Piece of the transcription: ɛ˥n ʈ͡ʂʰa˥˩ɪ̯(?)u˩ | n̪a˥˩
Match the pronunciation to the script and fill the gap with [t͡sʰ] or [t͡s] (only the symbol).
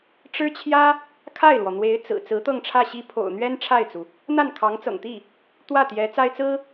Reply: t͡s